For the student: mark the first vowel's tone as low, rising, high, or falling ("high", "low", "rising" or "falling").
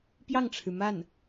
falling